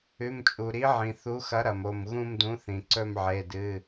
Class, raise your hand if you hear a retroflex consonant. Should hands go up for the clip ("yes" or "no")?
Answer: no